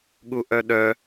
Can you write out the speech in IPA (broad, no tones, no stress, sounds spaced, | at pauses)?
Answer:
ɠ u ʔ œ ɗ œ